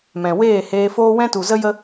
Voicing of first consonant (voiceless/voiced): voiced